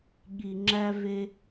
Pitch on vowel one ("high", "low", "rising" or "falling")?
low